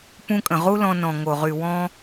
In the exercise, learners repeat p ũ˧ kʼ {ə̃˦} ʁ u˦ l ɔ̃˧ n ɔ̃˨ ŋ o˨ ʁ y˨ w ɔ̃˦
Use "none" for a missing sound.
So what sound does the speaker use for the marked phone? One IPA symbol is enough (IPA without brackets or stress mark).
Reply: ə̃˨